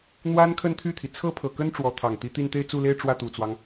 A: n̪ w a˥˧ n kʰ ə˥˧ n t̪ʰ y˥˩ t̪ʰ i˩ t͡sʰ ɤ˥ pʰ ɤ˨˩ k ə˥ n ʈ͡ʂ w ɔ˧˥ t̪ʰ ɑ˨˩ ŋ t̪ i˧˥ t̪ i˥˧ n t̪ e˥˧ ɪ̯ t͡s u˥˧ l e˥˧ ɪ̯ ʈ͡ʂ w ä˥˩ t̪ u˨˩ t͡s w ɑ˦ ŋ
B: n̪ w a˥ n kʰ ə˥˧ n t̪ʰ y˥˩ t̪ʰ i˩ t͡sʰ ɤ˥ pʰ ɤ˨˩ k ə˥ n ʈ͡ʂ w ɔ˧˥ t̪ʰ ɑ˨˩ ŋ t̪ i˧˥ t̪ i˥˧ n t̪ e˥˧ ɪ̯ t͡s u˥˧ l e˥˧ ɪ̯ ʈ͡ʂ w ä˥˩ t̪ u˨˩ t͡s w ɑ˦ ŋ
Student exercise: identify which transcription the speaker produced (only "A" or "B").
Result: B